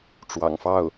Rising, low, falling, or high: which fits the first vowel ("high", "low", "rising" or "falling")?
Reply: low